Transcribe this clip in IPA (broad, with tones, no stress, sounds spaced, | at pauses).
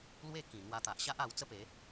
l w e˥˧ k ĩ˨˩ n̪ w a˧ t̪ a˨ ʔ ɕ a˦ ʔ a˧ w t͡s ə˦ p e˨˦